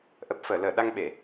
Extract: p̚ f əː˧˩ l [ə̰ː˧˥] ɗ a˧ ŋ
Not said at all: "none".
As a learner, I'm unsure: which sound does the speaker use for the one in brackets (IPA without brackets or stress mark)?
əː˧˩